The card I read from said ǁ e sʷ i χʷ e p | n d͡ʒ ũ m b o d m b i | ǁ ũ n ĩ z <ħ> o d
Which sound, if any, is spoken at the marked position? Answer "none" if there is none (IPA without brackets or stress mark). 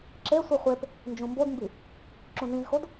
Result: x